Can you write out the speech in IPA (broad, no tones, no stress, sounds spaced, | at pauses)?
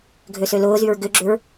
ɡʱ ø s ø l ʊː z y ɹ ɡ ʏ ɡ͡ǁ ʏ ɹ